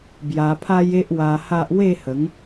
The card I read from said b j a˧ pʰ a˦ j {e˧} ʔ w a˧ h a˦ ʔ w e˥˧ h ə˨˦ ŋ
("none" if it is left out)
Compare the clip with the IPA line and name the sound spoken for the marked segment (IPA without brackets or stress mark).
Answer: e˦